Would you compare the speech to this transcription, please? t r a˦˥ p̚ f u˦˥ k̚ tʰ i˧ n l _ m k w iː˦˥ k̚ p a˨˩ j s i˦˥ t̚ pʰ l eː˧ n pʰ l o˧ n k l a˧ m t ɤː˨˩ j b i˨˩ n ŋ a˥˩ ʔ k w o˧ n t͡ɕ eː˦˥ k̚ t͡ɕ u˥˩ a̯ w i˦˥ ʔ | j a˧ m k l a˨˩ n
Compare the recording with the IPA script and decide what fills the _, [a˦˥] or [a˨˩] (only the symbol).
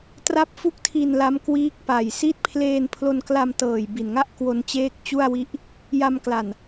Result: a˦˥